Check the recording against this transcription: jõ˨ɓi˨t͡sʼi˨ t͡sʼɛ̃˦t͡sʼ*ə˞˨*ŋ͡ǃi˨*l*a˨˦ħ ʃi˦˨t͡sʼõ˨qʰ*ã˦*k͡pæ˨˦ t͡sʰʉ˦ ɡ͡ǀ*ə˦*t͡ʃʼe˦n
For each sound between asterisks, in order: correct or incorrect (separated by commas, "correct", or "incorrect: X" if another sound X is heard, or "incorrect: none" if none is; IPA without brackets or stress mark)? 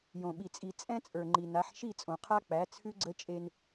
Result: correct, incorrect: n, incorrect: a˦, correct